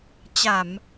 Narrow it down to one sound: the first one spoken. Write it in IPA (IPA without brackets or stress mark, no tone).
t͡ɕ